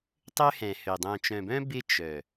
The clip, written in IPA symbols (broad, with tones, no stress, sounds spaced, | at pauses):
tˤ ø˦ h ɛ̃˨ h ø˨ dˤ œ̃˨ t͡ʃ œ̃˨ b œ̃˦ b ɪ˦ t͡ʃ œ˨